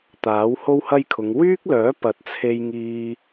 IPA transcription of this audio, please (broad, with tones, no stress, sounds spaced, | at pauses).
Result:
t̪ aː˨˥ w h o˥ w h ɐ˥ j kʰ ʊ˨˧ ŋ w yː˥ k̚ l œː˨˥ p ɐ˨˥ t̚ t͡sʰ e˧ j ŋ iː˧